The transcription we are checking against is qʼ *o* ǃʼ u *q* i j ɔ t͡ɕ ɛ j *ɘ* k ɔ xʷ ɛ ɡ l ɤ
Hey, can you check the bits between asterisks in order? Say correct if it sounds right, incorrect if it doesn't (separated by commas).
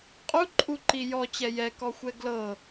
incorrect, incorrect, incorrect